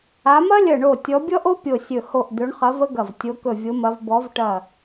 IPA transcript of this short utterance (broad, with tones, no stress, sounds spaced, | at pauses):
a˨˦ m ɐ˥ lʲ ɐ˧˩ ɳ o˧˩ tʲ ɔ˨˦ bʲ ɔ˥ ʔ o˥ pʲ o˧˩ sʲ ɵ˧˩ h o˧˩ ʔ d̪ ɵ˨˦ ɳ χ ɐ˨˦ v ə˥ ɡ ɐ˧˩ v tʲ o˨˦ k ɵ˧˩ vʲ o˨˦ m ɐ˨˦ v b ɔ˨˦ v ʈ ɐ˧˩